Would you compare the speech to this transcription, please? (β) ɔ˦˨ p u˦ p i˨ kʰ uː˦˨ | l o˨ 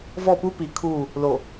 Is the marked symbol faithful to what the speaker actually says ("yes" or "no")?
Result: no